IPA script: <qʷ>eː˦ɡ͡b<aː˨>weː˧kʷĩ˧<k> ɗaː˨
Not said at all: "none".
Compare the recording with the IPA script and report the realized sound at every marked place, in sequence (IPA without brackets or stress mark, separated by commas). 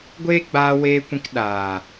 ɡʷ, aː˧, k